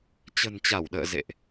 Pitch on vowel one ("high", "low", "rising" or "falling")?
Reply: low